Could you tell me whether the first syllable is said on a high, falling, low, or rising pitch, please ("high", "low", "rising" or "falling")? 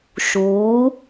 rising